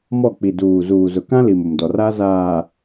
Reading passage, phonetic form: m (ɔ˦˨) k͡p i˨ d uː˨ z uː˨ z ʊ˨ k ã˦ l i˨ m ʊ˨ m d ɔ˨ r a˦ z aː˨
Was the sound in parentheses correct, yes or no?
yes